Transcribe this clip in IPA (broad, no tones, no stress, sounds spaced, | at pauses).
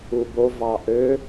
u b o v ɑ ʔ ø